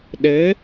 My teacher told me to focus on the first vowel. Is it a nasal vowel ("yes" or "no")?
no